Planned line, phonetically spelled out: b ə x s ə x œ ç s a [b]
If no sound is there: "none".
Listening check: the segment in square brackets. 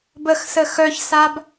b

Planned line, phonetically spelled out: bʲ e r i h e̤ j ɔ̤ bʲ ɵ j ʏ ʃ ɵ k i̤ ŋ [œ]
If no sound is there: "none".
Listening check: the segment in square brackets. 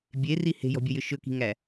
æ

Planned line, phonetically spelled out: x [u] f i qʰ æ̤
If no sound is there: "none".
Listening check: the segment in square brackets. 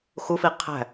u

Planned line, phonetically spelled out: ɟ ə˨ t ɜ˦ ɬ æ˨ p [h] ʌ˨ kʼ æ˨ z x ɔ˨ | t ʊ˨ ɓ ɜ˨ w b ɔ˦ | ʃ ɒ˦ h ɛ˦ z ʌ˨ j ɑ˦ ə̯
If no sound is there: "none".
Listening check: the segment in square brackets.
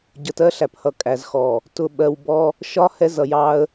h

